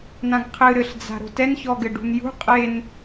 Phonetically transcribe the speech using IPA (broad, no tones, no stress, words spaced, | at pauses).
nãɡqʰɨ ɾɘɬd͡za̤ ɾo̤tɛnçɔɡɘ ɖṳnjṳ qʼen